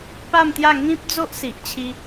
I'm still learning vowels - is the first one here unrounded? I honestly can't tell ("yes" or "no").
yes